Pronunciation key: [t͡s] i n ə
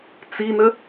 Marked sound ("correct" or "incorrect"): correct